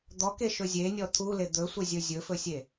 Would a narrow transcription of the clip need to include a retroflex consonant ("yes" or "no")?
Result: no